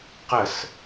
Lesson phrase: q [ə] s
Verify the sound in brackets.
correct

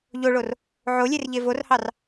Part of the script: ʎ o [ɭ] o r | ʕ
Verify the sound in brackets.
correct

